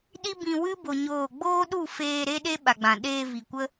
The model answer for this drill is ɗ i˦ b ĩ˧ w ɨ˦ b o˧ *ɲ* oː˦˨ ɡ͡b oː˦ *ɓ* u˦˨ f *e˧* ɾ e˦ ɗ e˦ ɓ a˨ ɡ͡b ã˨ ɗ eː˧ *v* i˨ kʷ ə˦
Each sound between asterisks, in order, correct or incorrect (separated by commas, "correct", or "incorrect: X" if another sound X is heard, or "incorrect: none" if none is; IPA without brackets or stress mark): correct, incorrect: ɗ, incorrect: eː˧, correct